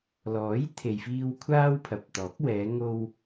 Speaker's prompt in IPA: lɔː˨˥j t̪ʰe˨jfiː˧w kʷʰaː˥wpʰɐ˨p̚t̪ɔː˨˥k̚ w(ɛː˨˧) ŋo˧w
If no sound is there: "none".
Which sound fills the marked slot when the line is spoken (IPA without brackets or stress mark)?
ɛː˨˧